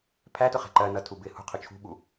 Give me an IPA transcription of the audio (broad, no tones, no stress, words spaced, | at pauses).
pʰætʊχæ̤ ǃɜnʌtʰu bɪ hṳqʰʊ t͡ʃʰṳɓu